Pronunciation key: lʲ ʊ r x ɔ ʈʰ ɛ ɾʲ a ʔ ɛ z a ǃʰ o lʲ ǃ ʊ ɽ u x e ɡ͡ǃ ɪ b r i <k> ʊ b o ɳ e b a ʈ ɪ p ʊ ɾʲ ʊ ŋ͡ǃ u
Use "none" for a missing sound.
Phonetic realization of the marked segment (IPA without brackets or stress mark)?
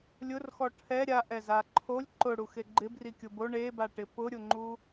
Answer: kʲ